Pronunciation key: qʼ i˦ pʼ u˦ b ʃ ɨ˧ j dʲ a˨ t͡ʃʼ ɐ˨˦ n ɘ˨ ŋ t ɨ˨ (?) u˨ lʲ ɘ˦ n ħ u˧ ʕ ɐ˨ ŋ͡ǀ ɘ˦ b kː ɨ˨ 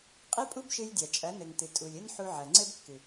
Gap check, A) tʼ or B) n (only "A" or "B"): A